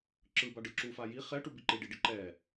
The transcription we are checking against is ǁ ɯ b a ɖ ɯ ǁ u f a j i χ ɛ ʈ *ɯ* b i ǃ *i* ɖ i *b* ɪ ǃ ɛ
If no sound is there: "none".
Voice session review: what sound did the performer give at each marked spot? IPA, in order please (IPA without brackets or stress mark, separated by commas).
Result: u, i, ɖ